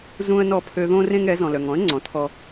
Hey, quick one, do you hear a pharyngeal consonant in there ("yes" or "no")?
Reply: no